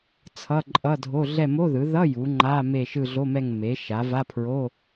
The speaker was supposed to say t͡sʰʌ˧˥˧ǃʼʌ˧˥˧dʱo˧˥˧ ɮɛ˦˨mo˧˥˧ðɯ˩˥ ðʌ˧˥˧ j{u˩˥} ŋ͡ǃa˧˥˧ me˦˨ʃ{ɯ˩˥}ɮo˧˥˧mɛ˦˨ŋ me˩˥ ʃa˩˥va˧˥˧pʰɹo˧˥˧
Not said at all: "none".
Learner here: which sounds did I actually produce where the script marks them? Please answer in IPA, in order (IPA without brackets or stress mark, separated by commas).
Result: u˩˥, ɯ˦˨